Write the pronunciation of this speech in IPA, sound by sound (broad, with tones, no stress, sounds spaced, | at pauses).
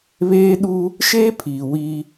β eː˦ ɗ uː˦ | ʃ eː˦ pʰ iː˨ w iː˦